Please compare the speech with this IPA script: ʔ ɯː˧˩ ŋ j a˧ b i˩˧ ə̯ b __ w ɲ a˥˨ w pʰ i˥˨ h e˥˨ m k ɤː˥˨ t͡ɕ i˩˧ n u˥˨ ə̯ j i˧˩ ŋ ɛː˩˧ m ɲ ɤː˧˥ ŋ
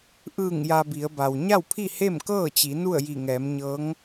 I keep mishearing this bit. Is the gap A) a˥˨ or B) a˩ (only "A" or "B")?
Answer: B